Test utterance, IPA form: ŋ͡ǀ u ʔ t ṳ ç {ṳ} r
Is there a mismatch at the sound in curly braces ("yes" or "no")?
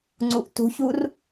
yes